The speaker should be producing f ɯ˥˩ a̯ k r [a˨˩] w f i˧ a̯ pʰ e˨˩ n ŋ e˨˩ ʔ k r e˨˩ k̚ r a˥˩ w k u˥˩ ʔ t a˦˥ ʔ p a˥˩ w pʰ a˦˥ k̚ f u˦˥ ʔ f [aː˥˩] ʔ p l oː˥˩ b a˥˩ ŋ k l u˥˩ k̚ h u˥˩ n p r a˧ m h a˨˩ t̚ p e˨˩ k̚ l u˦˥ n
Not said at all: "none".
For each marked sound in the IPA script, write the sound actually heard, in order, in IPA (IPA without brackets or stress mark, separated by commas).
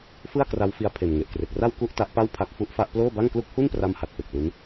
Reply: a˦˥, a˥˩